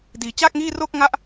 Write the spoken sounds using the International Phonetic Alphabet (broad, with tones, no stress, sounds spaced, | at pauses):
d iː˩˦ t͡ɕ aː˥˩ k̚ ŋ iː˥˩ r o˥˩ k̚ ŋ a˥˩ ʔ